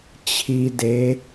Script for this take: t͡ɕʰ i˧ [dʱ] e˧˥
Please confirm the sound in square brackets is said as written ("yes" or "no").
no